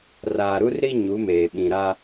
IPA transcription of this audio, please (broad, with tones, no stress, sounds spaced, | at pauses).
r aː˨ ɾ u˦ r ɾ i˦ ɲ u˨˦ m eː˨ ɓ ĩ˨ ɾ a˦